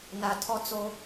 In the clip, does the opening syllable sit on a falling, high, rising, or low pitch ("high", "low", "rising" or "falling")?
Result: low